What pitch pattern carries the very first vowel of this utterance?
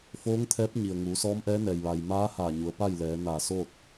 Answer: rising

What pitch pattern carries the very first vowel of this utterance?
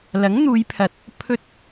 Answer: rising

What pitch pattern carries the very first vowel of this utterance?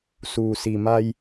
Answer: low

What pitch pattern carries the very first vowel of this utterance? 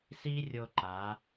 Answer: high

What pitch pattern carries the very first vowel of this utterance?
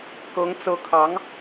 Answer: rising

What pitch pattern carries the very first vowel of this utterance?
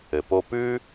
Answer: low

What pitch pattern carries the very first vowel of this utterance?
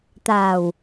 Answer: low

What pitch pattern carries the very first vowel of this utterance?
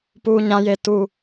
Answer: high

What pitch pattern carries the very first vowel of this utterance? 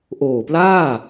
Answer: low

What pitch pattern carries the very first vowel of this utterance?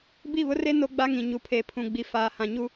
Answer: falling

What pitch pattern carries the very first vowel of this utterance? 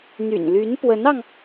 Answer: low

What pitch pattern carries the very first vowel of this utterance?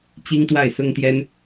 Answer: high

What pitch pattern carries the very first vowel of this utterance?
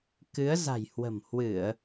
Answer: rising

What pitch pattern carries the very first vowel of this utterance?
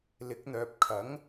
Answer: rising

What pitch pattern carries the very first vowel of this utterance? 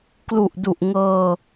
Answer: low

